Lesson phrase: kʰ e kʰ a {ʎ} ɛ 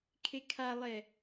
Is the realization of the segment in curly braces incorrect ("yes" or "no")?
yes